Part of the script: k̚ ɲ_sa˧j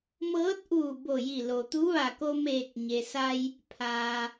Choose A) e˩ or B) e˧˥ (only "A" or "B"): A